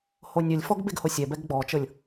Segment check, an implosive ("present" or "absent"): absent